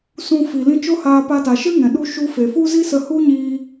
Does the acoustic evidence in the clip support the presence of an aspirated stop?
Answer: no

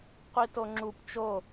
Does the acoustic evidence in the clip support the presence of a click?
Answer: yes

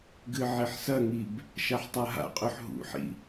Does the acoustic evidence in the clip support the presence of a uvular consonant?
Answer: yes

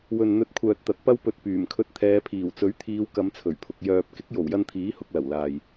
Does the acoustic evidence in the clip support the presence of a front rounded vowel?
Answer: yes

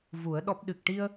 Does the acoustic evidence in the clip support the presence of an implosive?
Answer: yes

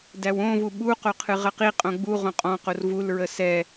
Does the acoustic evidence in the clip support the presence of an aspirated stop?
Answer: yes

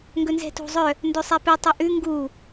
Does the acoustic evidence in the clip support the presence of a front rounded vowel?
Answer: yes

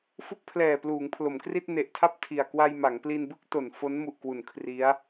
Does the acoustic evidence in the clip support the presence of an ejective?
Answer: no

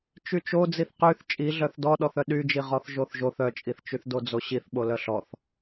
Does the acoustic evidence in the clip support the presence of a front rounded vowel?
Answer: yes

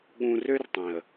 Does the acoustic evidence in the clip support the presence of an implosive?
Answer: yes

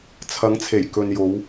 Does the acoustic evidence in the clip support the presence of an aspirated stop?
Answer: yes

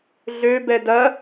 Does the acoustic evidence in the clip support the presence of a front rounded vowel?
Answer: yes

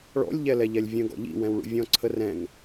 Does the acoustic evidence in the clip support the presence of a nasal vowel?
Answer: yes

